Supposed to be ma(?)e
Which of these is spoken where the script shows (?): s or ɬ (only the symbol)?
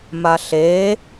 ɬ